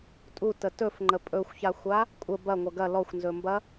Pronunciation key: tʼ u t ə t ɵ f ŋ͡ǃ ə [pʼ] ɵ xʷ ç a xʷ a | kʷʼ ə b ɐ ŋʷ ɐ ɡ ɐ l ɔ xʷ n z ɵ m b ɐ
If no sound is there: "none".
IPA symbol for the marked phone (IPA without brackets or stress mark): pʼ